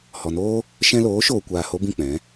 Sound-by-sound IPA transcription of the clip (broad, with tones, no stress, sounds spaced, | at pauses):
h ɔ˨ n oː˦ | ʃ ɛ̃˧ l oː˨˦ ʃ oː˨ kʷ aː˨ h o˦ b ĩ˦˨ k͡p ɛ̃˨˦